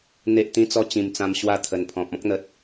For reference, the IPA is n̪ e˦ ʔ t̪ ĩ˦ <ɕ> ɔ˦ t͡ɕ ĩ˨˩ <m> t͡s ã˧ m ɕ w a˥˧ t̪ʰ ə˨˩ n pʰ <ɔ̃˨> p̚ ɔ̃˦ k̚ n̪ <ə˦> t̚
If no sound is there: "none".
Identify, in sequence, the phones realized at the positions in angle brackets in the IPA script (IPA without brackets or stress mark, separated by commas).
t͡s, m, ɔ̃˨, ə˨